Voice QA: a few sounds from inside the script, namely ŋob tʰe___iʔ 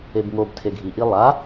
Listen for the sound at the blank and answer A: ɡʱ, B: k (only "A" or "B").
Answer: A